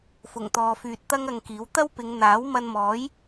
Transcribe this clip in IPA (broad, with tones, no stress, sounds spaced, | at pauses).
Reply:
f ʊ˨˩ ŋ t̪ ɔː˨ f yː˨ t̚ t̪ ɐ˥ ŋ ɐ˧ ŋ k iː˨˥ w t̪ ɐ˥ w p ɪ˨˧ ŋ n̪ aː˨˥ w m ɐ˧ n m ɔː˨˥ j